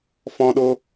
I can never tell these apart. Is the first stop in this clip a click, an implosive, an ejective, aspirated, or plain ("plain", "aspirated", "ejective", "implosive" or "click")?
implosive